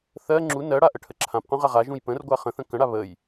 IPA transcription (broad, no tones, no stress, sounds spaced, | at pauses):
θ ɜ ŋ͡ǁ u n ɜ ɽ a ʔ ə ʈʰ ə ǁʰ ã p q ũ ʁ a ʁ a ʒ ũ j p ə̃ r ɡʷ a χ ə̃ θ ə̃ k ə̃ ɽ a β ə j